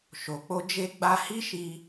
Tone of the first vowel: low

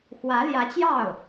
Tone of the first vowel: rising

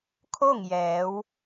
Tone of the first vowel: falling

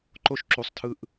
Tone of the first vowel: high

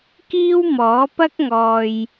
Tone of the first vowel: high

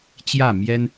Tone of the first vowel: falling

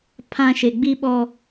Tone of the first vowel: low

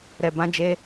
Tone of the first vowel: low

